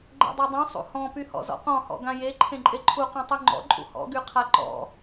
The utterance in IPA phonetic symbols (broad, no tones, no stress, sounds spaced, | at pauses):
ɡ͡ǃ ḛ dˤ e dˤ ũ sˤ ṵ h ɔ̃ p y h ɔ̰ z ɔ̰ q ɔ̃ h ɔ̰ ɡ ã j e ǃʰ ẽ ǃʼ e ǃʰ u q ẽ tˤ y ŋ͡ǃ ɔ̰ ǃʼ ṵ h ɔ̰ ɡ y qʰ a ǃ ɔ̰